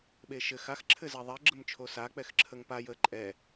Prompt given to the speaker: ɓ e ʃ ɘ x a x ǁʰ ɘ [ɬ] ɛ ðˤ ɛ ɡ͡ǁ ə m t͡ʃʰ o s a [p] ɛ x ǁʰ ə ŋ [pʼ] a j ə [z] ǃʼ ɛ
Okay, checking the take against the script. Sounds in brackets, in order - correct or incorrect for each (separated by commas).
incorrect, incorrect, incorrect, incorrect